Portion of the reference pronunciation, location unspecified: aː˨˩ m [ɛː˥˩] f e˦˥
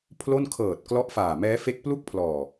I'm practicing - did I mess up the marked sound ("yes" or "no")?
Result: yes